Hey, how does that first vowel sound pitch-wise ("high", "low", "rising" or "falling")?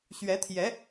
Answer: rising